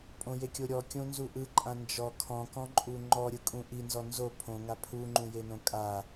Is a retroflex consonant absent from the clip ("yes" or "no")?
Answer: yes